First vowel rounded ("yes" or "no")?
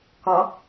yes